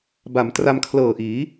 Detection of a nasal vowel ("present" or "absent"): absent